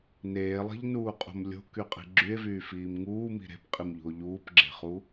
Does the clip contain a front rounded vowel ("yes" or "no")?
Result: yes